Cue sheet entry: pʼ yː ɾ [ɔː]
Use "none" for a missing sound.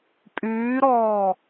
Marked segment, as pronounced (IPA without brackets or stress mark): ɔː